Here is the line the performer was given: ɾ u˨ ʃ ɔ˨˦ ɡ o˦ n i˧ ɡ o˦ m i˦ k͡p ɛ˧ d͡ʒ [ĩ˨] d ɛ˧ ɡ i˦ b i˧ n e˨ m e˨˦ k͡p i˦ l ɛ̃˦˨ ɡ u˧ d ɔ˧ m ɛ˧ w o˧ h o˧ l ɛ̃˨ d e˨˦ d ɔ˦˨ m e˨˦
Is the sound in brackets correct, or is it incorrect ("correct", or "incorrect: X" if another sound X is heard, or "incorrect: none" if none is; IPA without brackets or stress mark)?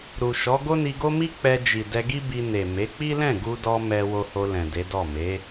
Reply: incorrect: i˨